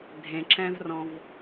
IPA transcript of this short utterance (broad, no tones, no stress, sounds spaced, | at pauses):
dʱ ẽ ǁ ɛ̃ v r ɔ̃ v